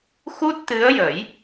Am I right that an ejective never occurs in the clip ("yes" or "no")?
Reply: yes